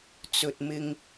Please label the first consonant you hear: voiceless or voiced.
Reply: voiceless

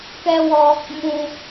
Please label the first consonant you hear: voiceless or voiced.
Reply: voiceless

